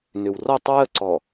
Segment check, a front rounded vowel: present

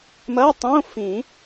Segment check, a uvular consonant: absent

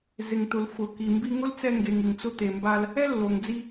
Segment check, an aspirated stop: absent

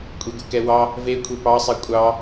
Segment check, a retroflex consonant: absent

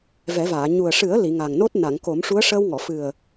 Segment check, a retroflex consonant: present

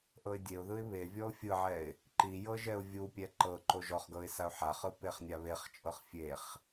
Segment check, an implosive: absent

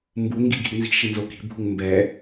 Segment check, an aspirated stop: absent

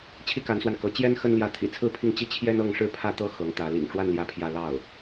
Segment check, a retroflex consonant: present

